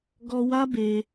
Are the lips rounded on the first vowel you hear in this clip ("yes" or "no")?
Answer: yes